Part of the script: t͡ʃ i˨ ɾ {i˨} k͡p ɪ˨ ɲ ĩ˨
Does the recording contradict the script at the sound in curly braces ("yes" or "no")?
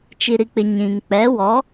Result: no